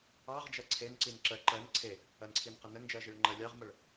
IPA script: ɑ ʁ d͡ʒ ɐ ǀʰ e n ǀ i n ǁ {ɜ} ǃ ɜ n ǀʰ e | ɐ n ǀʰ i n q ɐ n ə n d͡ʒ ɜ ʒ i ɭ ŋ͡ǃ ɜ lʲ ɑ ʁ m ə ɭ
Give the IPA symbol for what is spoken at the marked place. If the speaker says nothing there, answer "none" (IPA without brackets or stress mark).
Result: ɜ